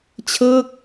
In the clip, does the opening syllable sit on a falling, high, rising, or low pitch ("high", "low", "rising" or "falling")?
falling